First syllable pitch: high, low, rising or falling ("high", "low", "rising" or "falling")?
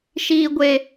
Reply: high